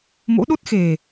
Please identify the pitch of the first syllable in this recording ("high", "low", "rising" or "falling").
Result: rising